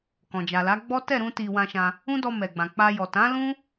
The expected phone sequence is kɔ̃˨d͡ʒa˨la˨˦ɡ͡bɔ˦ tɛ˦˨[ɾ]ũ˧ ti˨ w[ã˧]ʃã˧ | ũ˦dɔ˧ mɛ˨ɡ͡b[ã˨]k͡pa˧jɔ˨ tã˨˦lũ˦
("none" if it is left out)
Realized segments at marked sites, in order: ɾ, ã˧, ã˨

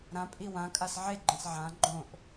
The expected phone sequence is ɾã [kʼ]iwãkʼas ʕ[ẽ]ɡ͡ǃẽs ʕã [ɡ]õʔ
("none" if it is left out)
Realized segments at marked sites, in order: pʼ, e, ɡ͡ǃ

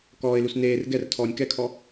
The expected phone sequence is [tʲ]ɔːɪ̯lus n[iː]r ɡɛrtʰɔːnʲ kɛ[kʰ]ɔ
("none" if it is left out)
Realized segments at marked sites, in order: k, eː, kʰ

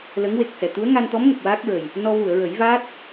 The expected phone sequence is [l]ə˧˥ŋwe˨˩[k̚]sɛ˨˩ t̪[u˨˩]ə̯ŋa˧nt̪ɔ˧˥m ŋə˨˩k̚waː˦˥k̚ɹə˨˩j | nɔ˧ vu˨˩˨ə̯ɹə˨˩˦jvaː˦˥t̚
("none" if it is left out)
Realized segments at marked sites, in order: l, k̚, u˧˥

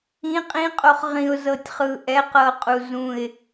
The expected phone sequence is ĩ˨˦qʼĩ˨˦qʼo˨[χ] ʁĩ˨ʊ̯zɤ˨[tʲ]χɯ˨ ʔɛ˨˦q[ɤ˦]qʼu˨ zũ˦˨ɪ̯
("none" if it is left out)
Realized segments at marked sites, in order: χ, tʲ, ɤ˨

